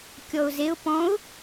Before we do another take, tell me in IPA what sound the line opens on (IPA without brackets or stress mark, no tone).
kʲ